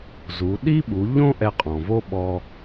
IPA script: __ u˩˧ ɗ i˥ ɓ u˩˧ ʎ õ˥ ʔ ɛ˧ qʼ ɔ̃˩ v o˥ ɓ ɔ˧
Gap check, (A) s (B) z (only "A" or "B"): B